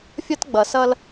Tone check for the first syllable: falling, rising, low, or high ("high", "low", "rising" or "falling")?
high